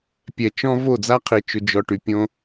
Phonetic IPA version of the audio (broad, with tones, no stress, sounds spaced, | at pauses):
pʲ ɛ˨ t͡ʃ ɔ̃˦ v o˦˨ d͡z a˦ qʰ i˨ t͡ʃ ʊ˨ d͡ʒ ɔ˨ ʈ y˨ pʲ õ˦